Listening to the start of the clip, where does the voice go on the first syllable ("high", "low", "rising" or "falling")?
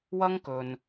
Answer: high